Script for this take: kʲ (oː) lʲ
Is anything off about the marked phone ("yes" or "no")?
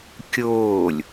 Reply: no